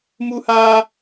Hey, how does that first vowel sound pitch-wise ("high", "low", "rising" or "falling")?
high